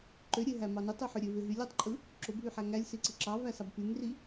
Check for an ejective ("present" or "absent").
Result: present